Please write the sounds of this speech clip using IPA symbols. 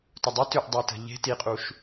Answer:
tʊdˤi tʏʔdˤetə̤ ʎe̤ tiqʼuʃ

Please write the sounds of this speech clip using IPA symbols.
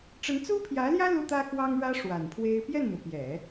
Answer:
ʈ͡ʂə˧˥nt͡su˥pʰjä˧˥ljä˥ lu˥t̪ä˥kwɑ˥ŋɻä˥ ʂwa˨˩npʰwe˥ɪ̯ pjɛ˥˩nn̪ɤ˩pjɛ˨˩˦

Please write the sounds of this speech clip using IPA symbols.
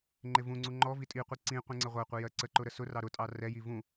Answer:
ŋ͡ǃɪvũŋ͡ǀu ŋ͡ǃɔ vitʼiqʷi ǀĩ qʷĩŋ͡ǀəʁʷɜqʷɪ jɜǀəǃʊ ɾəsʊrɑ ɾʊtʼɑ rɛji vũ

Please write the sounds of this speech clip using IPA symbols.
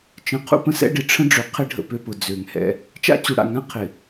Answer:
t͡ʃə̃˨ qʰṵ˦pə̃˦sɛ̰˦ ɖɪ˨ʈ͡ʂʰə̃˦ɖ͡ʐø˨ qʰɪ˦ɖʱə̰˨ pø˦pʊ˨ d͡zø˨ŋhɛ̰˦ | t͡ʃa̰˦t͡ɕu˨ɽa̰˨ŋã˦ qʰɪ˨

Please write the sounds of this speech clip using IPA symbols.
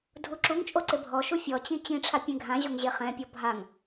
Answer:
dʱuǁuŋt͡ʃʼo ǀɪbʱɔʃu fʲɔt͡ɕĩ t͡ɕĩʈ͡ʂʰa pʲẽɡʱãʑoŋ ʑeχɛ̃pʲɔ bʱaŋ

